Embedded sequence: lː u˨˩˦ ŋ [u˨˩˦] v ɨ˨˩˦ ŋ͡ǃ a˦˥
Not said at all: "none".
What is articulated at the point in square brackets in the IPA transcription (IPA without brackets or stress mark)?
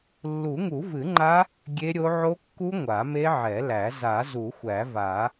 u˨˩˦